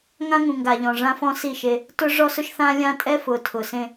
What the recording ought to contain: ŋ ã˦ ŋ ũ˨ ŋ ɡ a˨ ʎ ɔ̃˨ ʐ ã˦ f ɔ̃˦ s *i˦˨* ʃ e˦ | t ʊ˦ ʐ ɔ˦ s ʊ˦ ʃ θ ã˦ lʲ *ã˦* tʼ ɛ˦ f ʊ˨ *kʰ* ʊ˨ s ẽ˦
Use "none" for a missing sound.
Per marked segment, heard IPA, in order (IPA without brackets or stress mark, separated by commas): i˦˨, ã˦, tʰ